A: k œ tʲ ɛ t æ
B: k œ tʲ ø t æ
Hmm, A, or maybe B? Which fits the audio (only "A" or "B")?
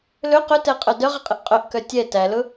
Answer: A